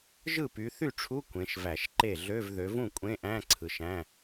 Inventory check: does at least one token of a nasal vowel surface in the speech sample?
yes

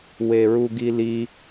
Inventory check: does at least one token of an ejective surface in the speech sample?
no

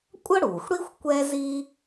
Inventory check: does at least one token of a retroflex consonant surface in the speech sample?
yes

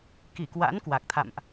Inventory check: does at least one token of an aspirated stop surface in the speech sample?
yes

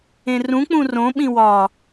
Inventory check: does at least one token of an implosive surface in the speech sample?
yes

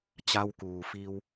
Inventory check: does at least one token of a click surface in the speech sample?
no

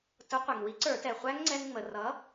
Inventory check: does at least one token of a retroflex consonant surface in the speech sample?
no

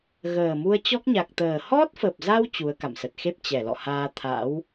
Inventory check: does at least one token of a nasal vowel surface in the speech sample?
no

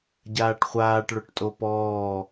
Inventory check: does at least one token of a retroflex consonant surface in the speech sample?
yes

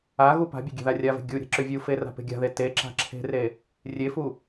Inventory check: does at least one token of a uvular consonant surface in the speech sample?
no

